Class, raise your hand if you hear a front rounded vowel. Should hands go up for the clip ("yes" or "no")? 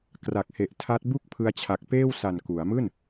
no